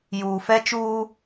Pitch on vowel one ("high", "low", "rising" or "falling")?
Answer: low